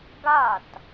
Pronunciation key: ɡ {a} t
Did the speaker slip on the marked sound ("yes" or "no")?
no